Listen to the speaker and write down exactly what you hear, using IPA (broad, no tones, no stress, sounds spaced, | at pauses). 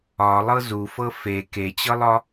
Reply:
ɒ lˠ ɤ z u f ɤ f e k e t͡ɕ ɤ lˠ ɒ